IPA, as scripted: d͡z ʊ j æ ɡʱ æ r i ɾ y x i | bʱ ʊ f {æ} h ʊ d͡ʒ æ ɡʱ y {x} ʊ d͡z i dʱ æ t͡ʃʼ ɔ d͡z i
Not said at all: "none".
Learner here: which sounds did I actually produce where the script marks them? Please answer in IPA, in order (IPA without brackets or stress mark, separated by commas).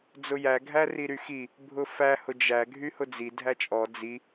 æ, h